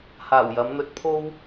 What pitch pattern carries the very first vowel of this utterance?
low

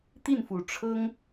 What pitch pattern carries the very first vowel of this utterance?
falling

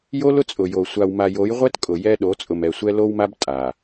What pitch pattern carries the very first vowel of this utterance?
high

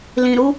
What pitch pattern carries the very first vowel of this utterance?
low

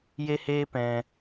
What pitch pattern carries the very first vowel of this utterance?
high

